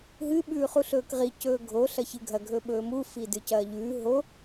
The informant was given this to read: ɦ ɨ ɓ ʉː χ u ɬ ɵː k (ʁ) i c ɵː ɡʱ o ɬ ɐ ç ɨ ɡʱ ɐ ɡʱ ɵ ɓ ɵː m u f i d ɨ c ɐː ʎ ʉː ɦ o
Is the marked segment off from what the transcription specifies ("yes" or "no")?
no